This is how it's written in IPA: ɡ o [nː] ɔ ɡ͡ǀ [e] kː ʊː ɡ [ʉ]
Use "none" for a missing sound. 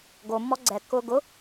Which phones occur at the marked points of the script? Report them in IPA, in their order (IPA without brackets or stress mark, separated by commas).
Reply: mː, ɛ, ʊ